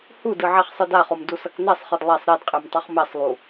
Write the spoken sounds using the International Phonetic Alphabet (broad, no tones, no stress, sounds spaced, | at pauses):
h u d ɯ ʕ e χ sˤ ɯ d a χ o m d u s ʌ k n ɛ sˤ χ ɯ d lˠ e sˤ ɾ e d qʼ e m tˤ ʌ χ m e sˤ lˠ u